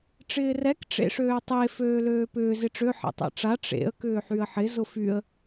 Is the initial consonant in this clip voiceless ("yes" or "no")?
yes